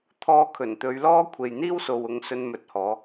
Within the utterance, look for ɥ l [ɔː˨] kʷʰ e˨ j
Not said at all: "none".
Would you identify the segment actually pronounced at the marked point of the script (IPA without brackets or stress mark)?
ɔː˥